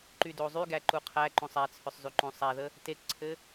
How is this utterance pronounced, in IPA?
ǃydozˤyɡæ ǃuqʰæǃõsˤ æt͡sʰʏsˤ zyǃõsˤæðə | tekǀʰɘ

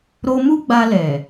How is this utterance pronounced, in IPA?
ɾo˧mu˦ ɡ͡ba˧lɛ˨

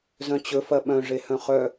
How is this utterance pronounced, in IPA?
zœ̃t͡ɕɵ fɐɓœ̃ ʐehœ̃χœ

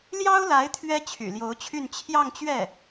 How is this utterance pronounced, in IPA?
ljɑ˥ʊ̯la˧˥ɪ̯ t̪ʰɥɛ˥t͡ɕʰy̰˨˩ljo˧˥ʊ̯t͡ɕʰy˥˧n t͡ɕʰjɑ˥˧ŋt͡ɕɥɛ˥˩

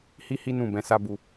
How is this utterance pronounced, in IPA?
hi˦hi˦ nũ˦˨bɛ̃˧ sa˦bu˧

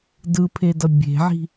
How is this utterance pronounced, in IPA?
dɯpʰedʌ bʲe̤ʕi̤

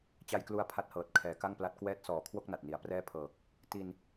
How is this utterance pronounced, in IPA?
t͡ɕa˧jklu˧a̯ pʰa˦˥t̚hɤː˨˩t̚ kʰɛː˩˦ka˥˩ŋpla˦˥t̚ kwɛː˦˥t̚ sɔː˨˩kʰwo˥˩k̚na˨˩t̚ni˩˦a̯ prɛː˥˩pʰɤː˨˩k̚ | ti˧n

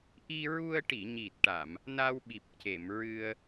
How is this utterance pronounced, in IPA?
ʔi˧ɹu˧ə̯ ʈi˨˩˨ ɲi˨˩t̚ʈa˨˩˨m | na˧wɓi˨˩p̚ce˨˩˨mɹɨ˧ə̯

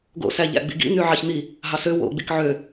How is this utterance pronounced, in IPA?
ɡo̰sæ ʎæ̰ɡ͡bḭɡḭ n̪yʕɑçn̪i | ɦɑsø wo̰ ɡ͡bikʕø

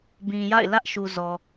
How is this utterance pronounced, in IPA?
bĩ˨ja̰˦˨ɪ̯ lä˦ʔʃu˨ zɔ˨

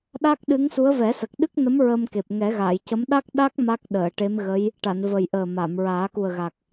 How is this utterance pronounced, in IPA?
ɗa˦˥k̚ɗɨ˧˥ŋsu˧˥ə̯ vɛ˨˩˦sə˨˩k̚ɗɨ˦˥k̚nə˧˥m ɹə˧mke˨˩p̚ ŋɛ˨˩˦ɣaː˨˩˨jcə˧˥m ɗa˦˥k̚ɗa˦˥k̚ ma˦˥k̚ɗəː˨˩˨ʈe˧˥mɣə˧˥j | ʈa˨˩˨nvə˨˩j ʔəː˨˩ma˨˩˨mɹaː˨˩˦ ku˨˩ə̯ɣa˨˩k̚

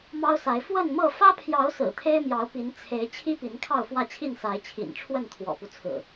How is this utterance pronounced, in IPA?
mɑ˦ʊ̯sa˨˦ɪ̯ fwə˥˨nmɤ˥˨ fä˦pʰjɑ˨˦ʊ̯ sɹ̩˨˩t̪ʰe˦ɪ̯mjɑ˨˦ʊ̯ pi˨˦nt͡sʰe˨˦ɪ̯ t͡ɕʰi˦pi˨˦n kʰɑ˥˨ʊ̯fwä˥˨t͡ɕʰi˥˨nsa˨˦ɪ̯ t͡ɕʰḭ˨˩nʈ͡ʂʰwə˥˨n t̪ʰwɔ̰˨˩pu˦t͡sʰɹ̩˨˩

